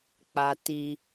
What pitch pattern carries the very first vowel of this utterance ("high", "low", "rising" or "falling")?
high